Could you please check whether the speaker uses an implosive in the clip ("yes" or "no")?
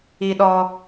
yes